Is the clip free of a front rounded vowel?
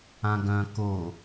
no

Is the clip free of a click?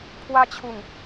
yes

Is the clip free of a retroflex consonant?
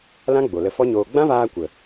yes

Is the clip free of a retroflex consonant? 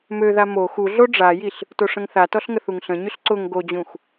no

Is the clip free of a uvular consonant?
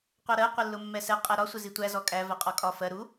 no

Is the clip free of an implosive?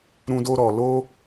yes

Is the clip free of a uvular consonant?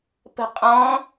no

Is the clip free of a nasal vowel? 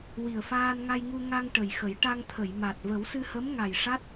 yes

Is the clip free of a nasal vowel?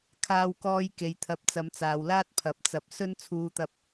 yes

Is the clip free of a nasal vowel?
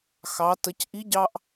yes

